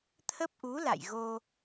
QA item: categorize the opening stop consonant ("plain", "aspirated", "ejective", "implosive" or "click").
aspirated